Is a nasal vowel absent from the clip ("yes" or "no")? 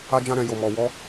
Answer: no